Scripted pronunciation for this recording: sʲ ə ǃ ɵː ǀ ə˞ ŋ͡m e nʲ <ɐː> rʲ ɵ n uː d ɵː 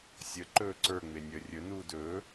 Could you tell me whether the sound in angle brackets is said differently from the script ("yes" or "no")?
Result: yes